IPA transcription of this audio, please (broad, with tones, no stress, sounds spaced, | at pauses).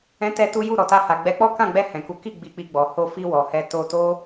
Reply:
ɛ̃˦ t ɛ˦ t u˦ j u˦˨ ɾ ɔ˨ t a˧ h a˨ ɡ͡b ɛ˨˦ k͡p ɔ˦ k ã˦˨ ɡ͡b ɛ˧ h ɛ̃˨ k u˨˦ k i˦˨ ɡ͡b i˧ k͡p i˧ ɡ͡b ɔ˨ h o˧ f i˧ w ɔ˨ h ɛ˧ t o˧ t o˦